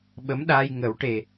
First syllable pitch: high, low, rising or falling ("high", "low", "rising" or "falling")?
rising